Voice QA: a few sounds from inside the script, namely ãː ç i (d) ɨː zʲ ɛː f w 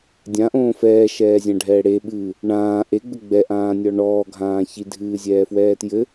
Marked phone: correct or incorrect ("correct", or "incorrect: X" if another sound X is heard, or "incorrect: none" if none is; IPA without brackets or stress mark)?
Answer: incorrect: dʱ